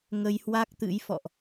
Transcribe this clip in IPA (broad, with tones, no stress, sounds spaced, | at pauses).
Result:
ŋ ə˧ j h w a˦˥ k̚ t̪ ɨ̰˧˥ j f ɔ̰˧˨ ʔ